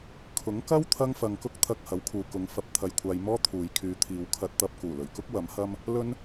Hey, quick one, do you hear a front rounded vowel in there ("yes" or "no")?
yes